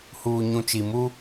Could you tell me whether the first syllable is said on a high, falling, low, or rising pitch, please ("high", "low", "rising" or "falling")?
low